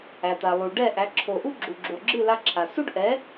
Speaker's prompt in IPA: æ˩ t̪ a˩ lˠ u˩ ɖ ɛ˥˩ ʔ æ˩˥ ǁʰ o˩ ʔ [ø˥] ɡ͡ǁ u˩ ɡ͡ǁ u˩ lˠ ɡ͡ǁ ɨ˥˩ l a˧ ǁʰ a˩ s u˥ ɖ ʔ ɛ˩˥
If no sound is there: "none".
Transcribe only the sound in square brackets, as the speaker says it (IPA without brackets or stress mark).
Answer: u˥